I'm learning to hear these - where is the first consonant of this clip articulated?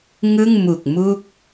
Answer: velum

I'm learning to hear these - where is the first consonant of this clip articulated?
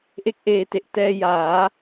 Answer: throat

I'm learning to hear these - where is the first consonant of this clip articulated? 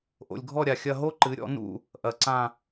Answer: throat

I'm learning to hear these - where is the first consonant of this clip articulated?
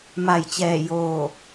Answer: lips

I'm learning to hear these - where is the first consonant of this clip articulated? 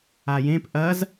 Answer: palate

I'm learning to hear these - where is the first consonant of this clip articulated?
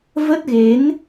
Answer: lips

